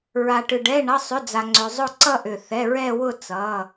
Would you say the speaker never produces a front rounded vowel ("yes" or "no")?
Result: no